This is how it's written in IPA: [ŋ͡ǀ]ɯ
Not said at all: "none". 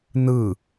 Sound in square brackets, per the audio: n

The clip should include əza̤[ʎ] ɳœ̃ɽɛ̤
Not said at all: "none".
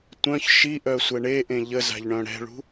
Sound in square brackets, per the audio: ʎ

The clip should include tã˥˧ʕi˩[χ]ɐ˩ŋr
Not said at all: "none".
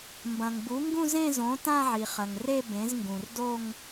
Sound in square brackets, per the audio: χ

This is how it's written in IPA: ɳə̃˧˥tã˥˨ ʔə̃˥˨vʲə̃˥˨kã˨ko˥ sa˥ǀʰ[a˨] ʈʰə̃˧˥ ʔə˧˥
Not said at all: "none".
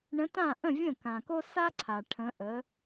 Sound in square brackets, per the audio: a˨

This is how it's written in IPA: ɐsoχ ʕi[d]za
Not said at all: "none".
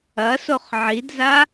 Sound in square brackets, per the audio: d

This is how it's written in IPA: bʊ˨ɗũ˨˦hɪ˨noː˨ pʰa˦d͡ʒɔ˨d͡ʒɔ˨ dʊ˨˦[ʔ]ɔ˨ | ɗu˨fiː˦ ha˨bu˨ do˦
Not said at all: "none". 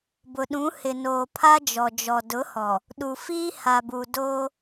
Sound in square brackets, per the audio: h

